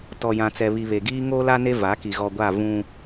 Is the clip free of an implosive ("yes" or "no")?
yes